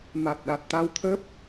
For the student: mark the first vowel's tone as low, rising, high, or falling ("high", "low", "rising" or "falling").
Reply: low